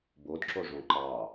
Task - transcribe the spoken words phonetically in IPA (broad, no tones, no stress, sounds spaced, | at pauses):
b o d ǁ o ʐ õ ǃ ɑ